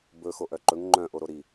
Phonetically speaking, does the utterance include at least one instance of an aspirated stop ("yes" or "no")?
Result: no